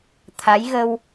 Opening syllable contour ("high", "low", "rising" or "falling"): rising